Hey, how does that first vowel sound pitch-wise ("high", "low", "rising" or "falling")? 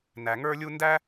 low